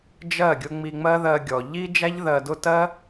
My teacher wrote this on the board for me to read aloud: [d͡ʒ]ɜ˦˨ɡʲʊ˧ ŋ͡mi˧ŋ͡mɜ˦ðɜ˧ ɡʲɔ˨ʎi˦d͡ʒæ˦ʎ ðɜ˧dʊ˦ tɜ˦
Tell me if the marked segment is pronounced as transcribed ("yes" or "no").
yes